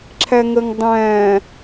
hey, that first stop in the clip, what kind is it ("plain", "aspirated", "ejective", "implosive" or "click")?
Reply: click